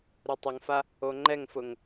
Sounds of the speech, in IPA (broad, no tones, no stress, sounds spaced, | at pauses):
ɾ u tˤ ʊ ŋ f a | o ŋ͡ǃ ɛ ŋ f ʊ ŋ